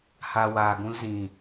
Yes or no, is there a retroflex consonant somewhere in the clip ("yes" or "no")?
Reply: no